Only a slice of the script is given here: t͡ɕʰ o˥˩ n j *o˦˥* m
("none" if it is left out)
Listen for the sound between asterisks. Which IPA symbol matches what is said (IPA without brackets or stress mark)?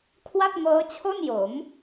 o˩˦